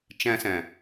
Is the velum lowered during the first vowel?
yes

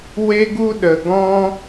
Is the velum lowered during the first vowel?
no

